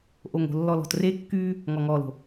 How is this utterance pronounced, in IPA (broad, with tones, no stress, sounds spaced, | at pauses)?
ʔ o˨ ŋ o̤˨ lː ɔ˨ l ɔ̤˨ t r e˦ kː yː˦ | ŋ ɔ˨ ŋ ɔː˨ l o̤˨